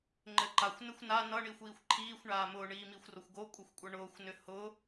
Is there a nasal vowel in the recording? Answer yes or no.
no